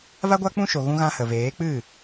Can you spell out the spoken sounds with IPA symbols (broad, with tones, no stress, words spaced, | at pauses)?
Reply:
va˦ɡʷa˦k͡pũ˦ʃo˨ ɣũ˧ɣã˧hə˨ veː˨˦k͡pɨ˦˨